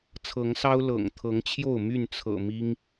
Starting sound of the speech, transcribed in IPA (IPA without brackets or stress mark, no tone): t͡sʰ